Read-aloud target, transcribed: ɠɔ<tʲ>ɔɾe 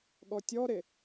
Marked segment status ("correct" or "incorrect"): correct